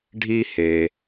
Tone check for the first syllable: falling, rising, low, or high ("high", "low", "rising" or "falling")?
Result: high